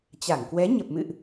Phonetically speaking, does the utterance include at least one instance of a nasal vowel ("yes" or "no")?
no